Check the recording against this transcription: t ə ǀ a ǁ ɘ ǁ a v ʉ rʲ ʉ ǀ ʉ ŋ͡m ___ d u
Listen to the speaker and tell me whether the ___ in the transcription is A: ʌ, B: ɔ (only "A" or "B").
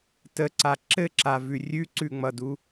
A